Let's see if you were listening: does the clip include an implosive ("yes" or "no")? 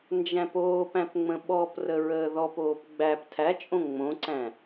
yes